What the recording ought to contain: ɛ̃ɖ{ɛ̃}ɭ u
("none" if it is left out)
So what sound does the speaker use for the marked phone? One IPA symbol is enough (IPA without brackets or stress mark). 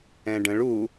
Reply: ə̃